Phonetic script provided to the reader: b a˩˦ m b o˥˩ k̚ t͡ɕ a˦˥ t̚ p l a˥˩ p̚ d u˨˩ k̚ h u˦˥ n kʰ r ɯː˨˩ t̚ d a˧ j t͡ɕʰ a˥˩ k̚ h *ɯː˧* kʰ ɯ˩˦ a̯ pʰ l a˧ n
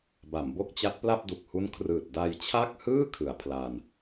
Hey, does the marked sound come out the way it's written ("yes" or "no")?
no